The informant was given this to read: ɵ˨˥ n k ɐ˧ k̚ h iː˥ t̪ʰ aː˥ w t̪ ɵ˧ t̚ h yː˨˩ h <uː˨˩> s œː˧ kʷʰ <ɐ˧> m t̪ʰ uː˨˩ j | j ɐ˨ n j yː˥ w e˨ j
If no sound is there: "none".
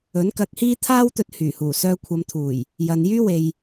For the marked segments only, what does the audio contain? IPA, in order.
uː˨˩, ɐ˨˧

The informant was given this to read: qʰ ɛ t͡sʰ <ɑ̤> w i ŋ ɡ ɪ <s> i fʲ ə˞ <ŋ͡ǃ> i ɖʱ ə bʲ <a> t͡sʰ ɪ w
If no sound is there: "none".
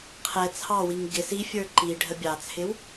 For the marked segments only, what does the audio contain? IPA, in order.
ɑ, s, ǃ, ɑ

